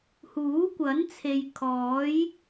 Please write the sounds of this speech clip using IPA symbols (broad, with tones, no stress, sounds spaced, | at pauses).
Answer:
h uː˨˥ kʷ ɐ˨˥ n t͡sʰ e˨ j kʰ ɔː˨˥ j